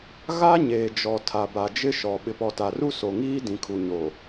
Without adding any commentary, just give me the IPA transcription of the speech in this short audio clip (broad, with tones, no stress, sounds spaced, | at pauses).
ɣ a˦ ɲ eː˨ d͡ʒ ɔ˨ tʰ a˨ b a˨ d͡ʒ ɪ˦ ʃ ɔ˨ ɓ ɪ˨ p ɔ˨ t a˨ r u˦ s o˨ ŋ iː˦ d ĩ˨ kʰ u˨ ɲ o˨